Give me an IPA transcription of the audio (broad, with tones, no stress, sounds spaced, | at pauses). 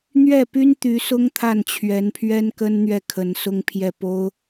n̪ ɥ ɛ˥˩ p y˥ n t̪ y˧˥ s ʊ˥ ŋ t̪ʰ a˥˩ n t͡ɕʰ ɥ ɛ˧˥ n pʰ ɥ ɛ˥ n k ə˥ n n̪ ɥ ɛ˥˩ kʰ ə˧˥ n s ʊ˥ ŋ pʰ j ɛ˥˩ p o˥ ʊ̯